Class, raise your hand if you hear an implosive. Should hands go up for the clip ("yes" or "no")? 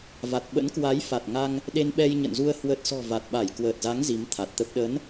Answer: yes